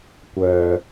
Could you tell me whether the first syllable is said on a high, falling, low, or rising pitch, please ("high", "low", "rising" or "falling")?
low